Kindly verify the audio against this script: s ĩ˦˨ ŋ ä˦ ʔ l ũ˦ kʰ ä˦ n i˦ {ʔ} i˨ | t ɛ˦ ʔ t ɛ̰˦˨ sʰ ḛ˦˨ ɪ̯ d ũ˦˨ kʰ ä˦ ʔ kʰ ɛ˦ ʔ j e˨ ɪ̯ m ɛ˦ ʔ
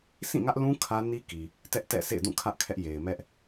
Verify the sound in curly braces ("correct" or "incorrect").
incorrect